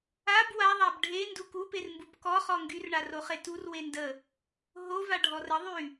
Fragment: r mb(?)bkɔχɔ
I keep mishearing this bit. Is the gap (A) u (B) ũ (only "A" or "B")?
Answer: A